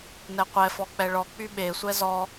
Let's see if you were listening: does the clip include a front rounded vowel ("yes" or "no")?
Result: yes